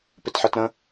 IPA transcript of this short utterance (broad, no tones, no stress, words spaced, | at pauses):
pɪtħɜtɾə̃